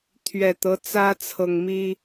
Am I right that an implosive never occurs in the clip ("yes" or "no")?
yes